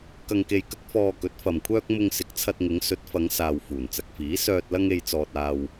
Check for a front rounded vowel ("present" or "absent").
present